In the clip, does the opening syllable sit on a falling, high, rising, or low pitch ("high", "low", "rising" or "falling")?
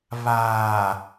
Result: low